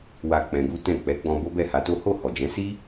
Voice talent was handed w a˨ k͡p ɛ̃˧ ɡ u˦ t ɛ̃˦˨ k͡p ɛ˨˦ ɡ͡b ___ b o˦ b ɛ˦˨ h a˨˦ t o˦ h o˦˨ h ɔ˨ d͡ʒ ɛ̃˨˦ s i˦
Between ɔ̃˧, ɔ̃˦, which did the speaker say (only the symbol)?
ɔ̃˧